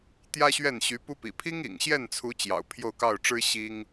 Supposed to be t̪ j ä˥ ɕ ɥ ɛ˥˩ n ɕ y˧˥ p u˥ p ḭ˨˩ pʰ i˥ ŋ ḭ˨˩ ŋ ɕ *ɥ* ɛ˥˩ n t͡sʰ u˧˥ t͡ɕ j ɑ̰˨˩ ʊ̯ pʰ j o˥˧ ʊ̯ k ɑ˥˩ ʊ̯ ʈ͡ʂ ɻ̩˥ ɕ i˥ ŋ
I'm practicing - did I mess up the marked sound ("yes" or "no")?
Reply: yes